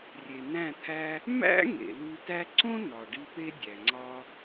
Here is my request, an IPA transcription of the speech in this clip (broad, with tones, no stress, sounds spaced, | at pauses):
rʲ e˨ n æ̃˦˨ t̪ʰ æ˦ | m æ̰˦ ŋ ḛ˨ l u˧ t æ˧ ǀ õ˦ n ɒ˨ ɖ i˧ p e˦ dʲ æ˨ ŋ͡ǀ ɒ˦